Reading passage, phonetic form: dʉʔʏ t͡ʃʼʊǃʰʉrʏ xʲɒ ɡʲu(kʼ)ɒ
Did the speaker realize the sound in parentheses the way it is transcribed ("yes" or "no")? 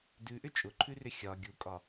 yes